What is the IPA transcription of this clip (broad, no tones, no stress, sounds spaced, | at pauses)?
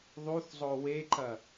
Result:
ðˤ u θ zˤ o w e ǃ ɐ